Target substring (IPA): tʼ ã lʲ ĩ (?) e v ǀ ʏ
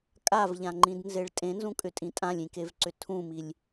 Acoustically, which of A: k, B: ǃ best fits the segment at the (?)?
A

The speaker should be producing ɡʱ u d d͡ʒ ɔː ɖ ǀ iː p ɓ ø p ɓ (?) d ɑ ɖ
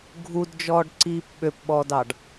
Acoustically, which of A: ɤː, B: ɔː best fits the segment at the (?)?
B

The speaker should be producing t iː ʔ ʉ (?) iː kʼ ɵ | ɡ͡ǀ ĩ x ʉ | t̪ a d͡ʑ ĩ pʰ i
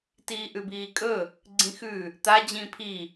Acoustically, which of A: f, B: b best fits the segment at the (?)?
B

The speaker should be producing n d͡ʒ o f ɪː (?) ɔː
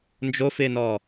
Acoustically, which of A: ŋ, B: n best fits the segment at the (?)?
B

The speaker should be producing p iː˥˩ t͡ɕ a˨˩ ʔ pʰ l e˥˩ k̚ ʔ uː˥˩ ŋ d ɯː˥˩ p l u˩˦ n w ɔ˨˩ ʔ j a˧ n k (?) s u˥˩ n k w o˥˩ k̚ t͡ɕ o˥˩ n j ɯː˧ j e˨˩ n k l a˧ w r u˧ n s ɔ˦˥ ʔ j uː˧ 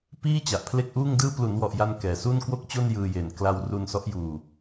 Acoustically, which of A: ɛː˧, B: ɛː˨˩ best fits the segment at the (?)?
B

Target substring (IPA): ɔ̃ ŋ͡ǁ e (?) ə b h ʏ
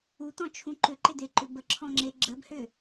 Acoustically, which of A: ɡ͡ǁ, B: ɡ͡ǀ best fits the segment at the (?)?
A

